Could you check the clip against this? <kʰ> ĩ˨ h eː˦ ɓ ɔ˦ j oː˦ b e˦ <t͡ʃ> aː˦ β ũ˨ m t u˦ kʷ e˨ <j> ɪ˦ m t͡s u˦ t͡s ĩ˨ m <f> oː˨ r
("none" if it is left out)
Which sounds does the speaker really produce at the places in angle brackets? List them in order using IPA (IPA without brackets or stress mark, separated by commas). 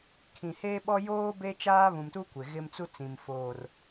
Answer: kʰ, t͡ʃ, ɣ, f